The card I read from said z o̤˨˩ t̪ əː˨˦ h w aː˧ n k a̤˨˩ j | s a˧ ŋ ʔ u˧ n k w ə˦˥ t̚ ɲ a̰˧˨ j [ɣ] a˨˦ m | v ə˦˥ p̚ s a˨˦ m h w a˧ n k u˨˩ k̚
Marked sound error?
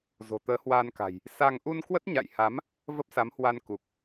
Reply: yes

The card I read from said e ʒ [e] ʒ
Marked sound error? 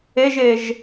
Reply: no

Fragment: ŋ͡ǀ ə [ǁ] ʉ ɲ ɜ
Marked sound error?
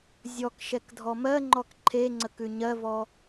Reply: yes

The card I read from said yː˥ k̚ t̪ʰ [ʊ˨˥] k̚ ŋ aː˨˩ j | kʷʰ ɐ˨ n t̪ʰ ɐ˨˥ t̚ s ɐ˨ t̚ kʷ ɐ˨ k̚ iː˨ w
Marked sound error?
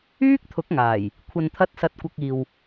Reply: no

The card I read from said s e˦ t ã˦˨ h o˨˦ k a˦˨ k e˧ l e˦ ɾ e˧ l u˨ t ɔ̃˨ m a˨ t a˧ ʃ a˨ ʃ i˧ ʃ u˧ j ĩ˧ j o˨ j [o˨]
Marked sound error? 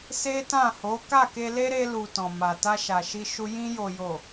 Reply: no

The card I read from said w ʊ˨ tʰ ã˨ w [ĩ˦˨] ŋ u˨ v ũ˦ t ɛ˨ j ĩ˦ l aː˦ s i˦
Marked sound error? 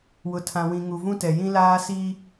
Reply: yes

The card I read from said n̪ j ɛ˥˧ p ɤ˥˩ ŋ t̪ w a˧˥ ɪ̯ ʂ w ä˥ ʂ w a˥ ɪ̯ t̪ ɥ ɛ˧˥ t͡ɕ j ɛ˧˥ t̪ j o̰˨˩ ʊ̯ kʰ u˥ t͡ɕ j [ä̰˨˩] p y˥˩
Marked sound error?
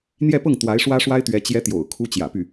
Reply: no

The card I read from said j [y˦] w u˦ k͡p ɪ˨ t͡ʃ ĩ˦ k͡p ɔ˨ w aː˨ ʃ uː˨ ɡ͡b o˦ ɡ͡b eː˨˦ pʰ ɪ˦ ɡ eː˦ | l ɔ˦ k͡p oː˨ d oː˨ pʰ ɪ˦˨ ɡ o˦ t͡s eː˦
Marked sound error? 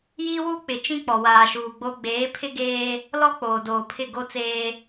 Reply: yes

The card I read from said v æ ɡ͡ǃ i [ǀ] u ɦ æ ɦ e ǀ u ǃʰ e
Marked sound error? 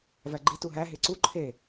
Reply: yes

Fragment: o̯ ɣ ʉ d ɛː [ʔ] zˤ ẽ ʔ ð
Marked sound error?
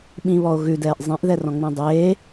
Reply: no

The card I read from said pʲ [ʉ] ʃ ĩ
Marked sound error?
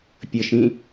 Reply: yes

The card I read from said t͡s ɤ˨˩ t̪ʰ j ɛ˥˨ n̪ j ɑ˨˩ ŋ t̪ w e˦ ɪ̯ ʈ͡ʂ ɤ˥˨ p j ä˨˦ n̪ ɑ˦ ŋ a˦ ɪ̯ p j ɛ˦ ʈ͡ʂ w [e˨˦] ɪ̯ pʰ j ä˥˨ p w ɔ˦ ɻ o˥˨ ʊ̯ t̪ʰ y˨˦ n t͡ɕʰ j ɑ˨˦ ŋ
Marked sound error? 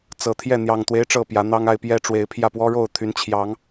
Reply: no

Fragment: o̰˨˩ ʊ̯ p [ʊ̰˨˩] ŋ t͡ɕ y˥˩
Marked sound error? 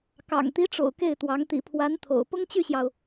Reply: yes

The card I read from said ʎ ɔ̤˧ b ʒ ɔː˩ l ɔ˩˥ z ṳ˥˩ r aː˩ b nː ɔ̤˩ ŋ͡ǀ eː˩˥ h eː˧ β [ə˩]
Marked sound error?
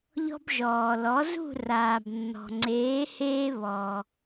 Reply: yes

